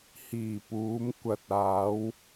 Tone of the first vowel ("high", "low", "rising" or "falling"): low